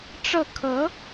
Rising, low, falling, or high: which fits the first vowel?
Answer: falling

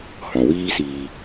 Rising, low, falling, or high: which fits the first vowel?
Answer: low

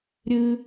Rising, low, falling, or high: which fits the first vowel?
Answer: high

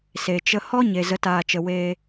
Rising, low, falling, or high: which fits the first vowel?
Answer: low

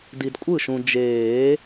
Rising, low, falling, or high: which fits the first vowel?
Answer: low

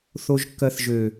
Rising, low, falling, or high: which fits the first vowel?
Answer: low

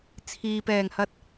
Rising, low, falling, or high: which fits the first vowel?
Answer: low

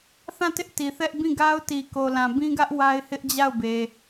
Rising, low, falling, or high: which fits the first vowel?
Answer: falling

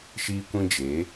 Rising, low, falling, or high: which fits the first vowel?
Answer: high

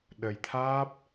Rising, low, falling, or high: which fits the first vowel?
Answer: low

